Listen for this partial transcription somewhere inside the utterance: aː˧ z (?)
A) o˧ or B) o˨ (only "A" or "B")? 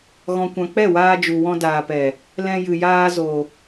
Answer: B